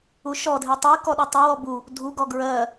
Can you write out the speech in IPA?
uʃɔdʱi tˤi kɔɗɔtˤɜ wɔbu | dʱuɡɔ ɡɹɜ

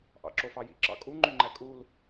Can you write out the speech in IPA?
ʔɑ̰ǁofɑjḭ ǁɑ̰kʼu ŋ͡ǃyŋ͡ǃækʼul

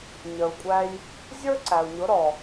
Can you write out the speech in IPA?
ɲə˩u̯kʷʼæ˧j | zʲə˞˥ǀæ˩u̯ɲʊ˩˥ ɾɔ˩

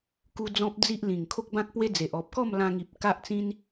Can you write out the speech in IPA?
ku˧ d͡zɔ̃˦p̚d͡zi˦ʔlĩ˨˩ŋ kʰo˦k̚bã˦k̚pwe˦d͡ze˨ʔ ɔ˨p̚kɔ˥˧mlã˧ŋi˨p̚ ka˦ʔt͡sĩ˦n

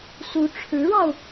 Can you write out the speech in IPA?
su˧˥ʈ͡ʂʰɻ̩˧˥ɻɑ˧ʊ̯

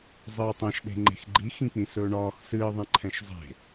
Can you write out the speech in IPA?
zˤɨːtˤɛ̃ʃ ɗe̤ŋ͡ǃe̤xɡ͡ǃi xĩk͡pĩsɵːɳɒːx sɨː ðˤẽǃʰɛ̃ʃzˤe̤

